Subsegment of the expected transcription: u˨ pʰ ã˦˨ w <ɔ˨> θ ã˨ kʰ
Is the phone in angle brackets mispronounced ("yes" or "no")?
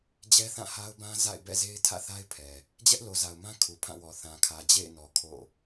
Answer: no